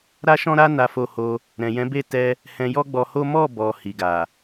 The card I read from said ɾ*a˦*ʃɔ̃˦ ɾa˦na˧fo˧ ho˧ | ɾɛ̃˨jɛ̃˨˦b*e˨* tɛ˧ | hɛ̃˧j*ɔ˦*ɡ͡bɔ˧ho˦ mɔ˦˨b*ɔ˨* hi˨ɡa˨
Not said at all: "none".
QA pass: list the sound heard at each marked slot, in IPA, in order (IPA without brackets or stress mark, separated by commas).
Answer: a˦, e˦˨, ɔ˦, ɔ˨